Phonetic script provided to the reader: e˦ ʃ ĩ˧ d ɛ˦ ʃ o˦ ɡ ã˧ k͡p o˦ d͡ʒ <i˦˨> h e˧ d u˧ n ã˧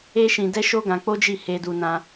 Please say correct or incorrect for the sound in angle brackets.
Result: correct